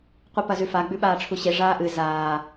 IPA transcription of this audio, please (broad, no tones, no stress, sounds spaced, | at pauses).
qʷ ɨ p ɐ z ʉ f a ɡ͡b ʉ ɓ aː ʈ͡ʂʰ u ɕ e ʐ aː ʔ ɨ z aː